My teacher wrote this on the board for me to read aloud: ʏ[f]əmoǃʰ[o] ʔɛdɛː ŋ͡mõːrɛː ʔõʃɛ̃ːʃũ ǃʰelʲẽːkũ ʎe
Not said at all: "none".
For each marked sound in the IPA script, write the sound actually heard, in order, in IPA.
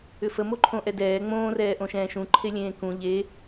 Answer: f, õ

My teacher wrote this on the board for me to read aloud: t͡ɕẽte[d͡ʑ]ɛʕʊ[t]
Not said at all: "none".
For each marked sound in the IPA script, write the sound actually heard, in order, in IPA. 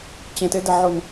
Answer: d, n

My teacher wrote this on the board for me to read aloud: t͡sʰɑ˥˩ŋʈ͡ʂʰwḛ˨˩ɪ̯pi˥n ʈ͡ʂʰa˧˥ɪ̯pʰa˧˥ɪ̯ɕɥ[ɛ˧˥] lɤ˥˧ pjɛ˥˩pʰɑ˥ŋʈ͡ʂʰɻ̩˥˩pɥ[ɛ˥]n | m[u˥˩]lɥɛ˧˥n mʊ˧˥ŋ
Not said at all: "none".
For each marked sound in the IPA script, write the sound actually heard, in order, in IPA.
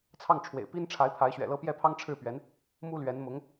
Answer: ɛ̰˨˩, ɛ˧˥, u˥

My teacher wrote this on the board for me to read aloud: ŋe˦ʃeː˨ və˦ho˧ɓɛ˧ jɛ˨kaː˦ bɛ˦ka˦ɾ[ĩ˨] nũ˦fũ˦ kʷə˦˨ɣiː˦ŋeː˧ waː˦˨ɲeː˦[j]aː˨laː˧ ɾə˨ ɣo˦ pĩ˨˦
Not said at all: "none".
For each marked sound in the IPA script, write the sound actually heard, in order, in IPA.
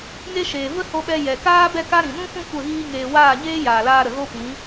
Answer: ĩ˨, j

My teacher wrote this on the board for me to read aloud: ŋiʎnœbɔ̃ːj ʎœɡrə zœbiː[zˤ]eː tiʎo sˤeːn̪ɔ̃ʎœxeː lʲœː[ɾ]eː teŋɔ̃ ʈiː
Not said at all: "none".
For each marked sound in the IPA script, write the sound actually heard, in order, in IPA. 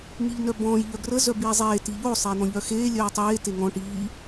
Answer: zˤ, tˤ

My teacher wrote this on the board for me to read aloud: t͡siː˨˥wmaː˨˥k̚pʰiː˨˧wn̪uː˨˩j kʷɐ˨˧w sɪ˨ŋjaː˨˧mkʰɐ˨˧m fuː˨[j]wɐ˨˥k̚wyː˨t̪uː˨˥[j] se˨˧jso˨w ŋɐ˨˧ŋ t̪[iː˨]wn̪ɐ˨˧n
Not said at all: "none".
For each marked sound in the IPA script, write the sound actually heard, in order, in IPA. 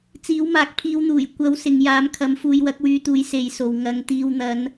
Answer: j, j, iː˨

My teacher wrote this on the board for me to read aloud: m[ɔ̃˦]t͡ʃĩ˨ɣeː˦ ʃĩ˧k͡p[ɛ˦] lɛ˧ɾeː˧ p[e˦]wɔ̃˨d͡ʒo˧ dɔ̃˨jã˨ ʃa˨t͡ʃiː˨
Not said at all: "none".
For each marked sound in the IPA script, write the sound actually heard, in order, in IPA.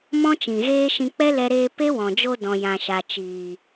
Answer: ɔ̃˦, ɛ˦, e˦

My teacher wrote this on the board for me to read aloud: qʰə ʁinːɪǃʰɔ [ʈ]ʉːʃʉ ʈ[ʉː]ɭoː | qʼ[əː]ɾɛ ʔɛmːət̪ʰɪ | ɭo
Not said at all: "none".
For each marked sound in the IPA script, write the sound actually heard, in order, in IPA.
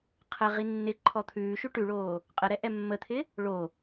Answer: t̪ʰ, ʉ, ə

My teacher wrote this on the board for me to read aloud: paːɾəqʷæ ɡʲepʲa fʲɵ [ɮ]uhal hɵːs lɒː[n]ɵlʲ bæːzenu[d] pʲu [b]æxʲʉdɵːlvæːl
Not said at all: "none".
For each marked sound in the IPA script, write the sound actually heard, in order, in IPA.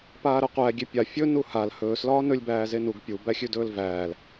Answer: n, n, ɡ, b

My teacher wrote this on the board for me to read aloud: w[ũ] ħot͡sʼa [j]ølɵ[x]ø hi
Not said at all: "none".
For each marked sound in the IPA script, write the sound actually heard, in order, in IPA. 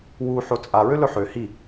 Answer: u, ɹ, ħ

